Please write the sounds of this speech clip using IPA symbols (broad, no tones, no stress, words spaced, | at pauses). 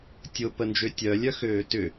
tʲʊpənd͡ʒø tʲœlʲœxøː tʏ